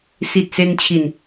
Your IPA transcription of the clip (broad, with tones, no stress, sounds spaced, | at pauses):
s i˨˩ t̚ s e˧ n t͡ɕʰ i˨˩ n